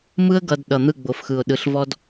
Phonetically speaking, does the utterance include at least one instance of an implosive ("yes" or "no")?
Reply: yes